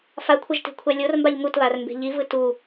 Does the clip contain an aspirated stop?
yes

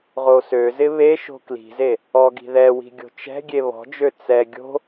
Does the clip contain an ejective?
no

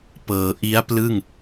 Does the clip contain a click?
no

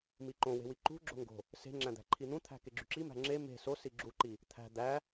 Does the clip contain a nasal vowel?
yes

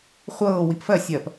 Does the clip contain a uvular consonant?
yes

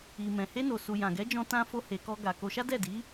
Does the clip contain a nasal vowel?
yes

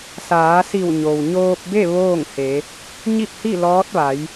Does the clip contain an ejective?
no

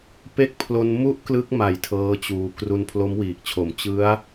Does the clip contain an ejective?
no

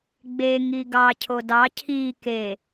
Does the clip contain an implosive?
no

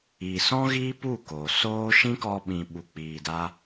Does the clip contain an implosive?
yes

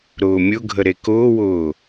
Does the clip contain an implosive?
no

